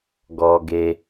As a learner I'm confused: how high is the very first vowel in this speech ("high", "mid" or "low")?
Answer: mid